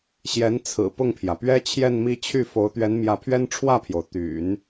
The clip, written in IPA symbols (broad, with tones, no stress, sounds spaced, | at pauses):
ɕ j ɛ˧˥ n t͡sʰ ɹ̩˨˩ p ʊ˥˩ ŋ pʰ j ä˩ p ɥ ɛ˥ t͡ɕʰ j ɛ˥˧ n m i˥˧ t͡ɕʰ y˥˩ f o˧˥ ʊ̯ t̪ ɥ ɛ˧˥ n m j ä˧˥ pʰ ɥ ɛ˥ n ʈ͡ʂʰ w ä˥˩ pʰ j o˩ ʊ̯ t̪ y̰˨˩˦ n